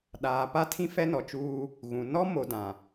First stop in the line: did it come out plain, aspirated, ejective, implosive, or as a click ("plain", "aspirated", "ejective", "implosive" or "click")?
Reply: implosive